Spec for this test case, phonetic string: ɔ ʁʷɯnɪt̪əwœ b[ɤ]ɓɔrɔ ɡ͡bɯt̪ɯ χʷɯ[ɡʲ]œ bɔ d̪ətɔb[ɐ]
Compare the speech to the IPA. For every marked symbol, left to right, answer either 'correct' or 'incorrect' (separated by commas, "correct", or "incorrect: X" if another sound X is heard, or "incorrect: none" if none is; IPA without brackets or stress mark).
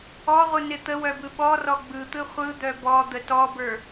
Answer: incorrect: ɯ, incorrect: d̪, incorrect: ə˞